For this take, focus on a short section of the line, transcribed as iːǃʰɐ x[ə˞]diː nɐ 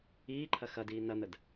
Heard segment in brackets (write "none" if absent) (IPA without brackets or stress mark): ɐ